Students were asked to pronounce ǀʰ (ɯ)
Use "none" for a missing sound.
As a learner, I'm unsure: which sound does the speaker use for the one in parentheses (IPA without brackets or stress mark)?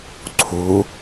u